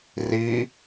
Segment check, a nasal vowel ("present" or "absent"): absent